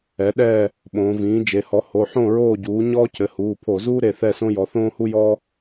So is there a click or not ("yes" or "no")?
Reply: no